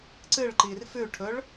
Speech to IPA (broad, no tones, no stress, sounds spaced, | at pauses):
ǀ ɨ ɭ ǃ i r f ʉ ʈʰ ɵ ɭ